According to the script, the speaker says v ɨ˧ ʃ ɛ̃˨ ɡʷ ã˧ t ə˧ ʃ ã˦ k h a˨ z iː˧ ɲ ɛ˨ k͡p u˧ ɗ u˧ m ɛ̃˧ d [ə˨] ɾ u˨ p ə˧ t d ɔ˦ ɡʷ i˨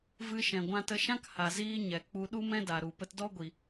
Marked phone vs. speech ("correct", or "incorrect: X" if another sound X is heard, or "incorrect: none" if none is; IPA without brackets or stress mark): incorrect: a˨